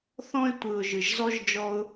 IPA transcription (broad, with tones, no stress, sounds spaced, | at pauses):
θ ɔ̃˥ ɪ̯ tʷ ɯ˨ ʊ̯ ʒ ɯ˩ ʒ z ɔ˥ ʒ d͡ʒ ɔ˦ ʊ̯